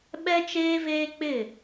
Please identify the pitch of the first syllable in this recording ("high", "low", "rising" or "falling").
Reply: high